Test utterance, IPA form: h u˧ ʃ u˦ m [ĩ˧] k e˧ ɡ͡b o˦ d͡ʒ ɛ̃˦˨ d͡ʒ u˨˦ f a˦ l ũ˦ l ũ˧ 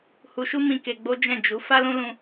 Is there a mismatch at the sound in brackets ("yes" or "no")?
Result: no